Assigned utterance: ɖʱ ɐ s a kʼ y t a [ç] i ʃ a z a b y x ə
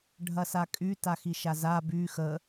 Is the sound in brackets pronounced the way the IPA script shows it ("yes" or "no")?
no